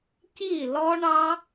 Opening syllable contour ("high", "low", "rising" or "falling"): falling